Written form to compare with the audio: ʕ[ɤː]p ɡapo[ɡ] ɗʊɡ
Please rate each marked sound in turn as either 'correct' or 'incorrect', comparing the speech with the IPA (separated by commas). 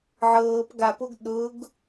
correct, correct